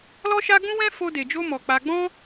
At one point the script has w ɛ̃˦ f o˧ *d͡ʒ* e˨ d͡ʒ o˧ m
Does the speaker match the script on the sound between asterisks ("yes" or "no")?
no